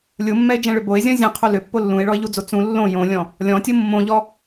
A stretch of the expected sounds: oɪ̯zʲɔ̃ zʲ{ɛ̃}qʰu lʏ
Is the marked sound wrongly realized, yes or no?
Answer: no